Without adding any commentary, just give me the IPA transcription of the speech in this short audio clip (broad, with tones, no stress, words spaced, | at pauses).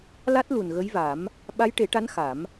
la˦˥t̚ lu˨˩nɣə˧˥jva˨˩˦m | ɓa˧˥jʈe˨˩˦ʈa˧˥n xa˨˩˦m